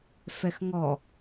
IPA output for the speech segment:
fɛxŋɔ

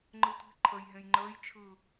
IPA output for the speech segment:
ŋ͡ǃɯtʷi̤ ǃʰəj ɦẽjŋ͡ǃəːj t͡ʃʰɯ

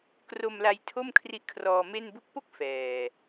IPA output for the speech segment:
kro˧mla˧j tʰo˥˩mkʰri˦˥ʔkʰrɔː˧ me˥˩n bu˦˥k̚po˥˩k̚ fɛː˨˩

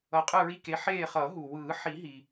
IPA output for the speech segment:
ʌ˨˦qʼɯ˦˨ɹi˦˨ke˨˦ ħeː˦˨χʌ˨˩˦ɦu˩ wɯː˨˩˦ħi˨˩˦ɦi˩

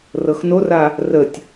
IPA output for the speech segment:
rɤxnora | rətʲ

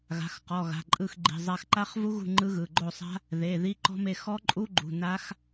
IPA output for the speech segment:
ɣa̤˩˧˩xqɔ˩˧˩ɣa̤˩˧˩ ǃʼɯ˦˨xɡ͡ǃi̤˩˧˩ zˤa˦˨x ǃa˦˥χvu˦˥ɣṳ˦˨ ŋ͡ǃɯ˦˥ɣɯ˩˧˩ ɡ͡ǃo˦˨sˤa̤˦˥ | ðe˩˧˩ ði˦˥ǃɔ̤˦˥me˦˨ xɔ˦˥ǃʼu˦˥ɡ͡ǃṳ˩˧˩ na˦˥x

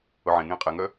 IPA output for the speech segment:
ʊʕẽ ŋẽːqʼɛŋœ

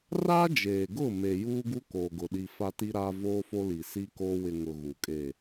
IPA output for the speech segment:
ra˦d͡ʒeː˨ɡʊ˦˨ me˨juː˦ɡu˦ koː˨ɡʊ˨ɗi˨ fa˦ti˦ɾaː˦ voː˦fo˦li˨ si˦koː˦ wɪ˨ ŋʊ˨ ɣu˨kʼe˦˨

